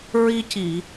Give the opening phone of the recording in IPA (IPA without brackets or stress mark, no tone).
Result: ɹ